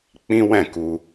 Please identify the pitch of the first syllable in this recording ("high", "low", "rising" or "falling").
high